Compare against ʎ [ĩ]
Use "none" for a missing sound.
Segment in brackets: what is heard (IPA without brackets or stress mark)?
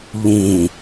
ĩ